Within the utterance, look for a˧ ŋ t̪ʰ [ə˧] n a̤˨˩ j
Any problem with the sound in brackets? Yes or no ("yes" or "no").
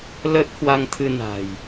yes